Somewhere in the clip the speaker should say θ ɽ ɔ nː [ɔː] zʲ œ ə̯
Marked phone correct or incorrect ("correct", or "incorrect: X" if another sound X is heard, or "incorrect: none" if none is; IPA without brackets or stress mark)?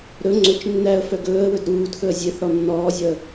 correct